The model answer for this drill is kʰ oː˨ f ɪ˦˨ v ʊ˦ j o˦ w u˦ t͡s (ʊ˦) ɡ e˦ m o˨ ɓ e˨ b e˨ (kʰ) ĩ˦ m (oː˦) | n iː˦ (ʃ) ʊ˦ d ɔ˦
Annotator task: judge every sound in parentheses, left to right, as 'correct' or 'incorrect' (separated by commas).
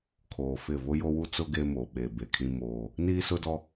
correct, correct, correct, incorrect